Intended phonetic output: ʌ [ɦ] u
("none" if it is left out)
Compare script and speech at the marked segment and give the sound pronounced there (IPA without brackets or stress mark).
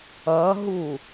ɦ